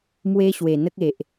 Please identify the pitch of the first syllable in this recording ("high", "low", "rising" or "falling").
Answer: high